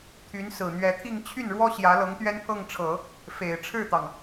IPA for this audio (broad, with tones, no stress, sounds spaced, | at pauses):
t̪ʰ y˧˥ n s ɹ̩˨˩ n̪ ɥ ɛ˧˥ t̪ʰ i˥˧ ŋ t͡ɕʰ y˥˩ n ɻ w ɔ˥ ɕ j ä˧˥ l ɤ˧˥ ŋ t̪ ɥ ɛ˥ n pʰ ɤ˥˩ ŋ ʈ͡ʂʰ ɤ˨˩˦ | f e˨˩ ɪ̯ ʈ͡ʂʰ ɻ̩˥˩ t̪ ɑ˩ ŋ